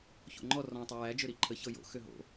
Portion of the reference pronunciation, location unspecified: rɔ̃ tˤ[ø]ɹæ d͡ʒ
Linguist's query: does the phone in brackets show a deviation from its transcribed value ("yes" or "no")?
yes